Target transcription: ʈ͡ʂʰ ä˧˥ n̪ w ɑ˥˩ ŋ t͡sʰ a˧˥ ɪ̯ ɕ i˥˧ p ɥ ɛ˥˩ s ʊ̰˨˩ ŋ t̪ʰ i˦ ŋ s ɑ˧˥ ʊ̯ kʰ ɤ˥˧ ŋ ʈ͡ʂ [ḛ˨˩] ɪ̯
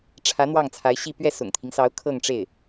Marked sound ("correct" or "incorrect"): incorrect